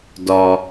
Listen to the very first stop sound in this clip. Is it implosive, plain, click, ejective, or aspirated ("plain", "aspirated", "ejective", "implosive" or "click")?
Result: plain